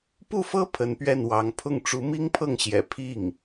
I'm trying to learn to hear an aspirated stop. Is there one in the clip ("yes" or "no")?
yes